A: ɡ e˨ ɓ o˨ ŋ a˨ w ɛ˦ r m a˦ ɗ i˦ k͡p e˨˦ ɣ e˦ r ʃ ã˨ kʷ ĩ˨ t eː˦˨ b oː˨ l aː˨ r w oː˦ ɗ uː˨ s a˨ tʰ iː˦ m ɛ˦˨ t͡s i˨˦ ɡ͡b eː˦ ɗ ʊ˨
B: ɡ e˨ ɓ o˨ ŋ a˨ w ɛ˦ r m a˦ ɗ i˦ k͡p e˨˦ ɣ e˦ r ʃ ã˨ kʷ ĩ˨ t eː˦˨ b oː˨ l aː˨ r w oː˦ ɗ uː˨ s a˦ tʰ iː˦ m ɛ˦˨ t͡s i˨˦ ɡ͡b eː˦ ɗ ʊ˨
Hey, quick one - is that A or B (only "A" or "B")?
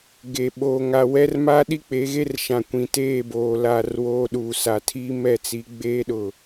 A